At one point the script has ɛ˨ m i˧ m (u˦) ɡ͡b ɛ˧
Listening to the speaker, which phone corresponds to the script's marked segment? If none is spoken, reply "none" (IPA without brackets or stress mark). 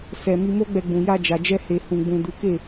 o˦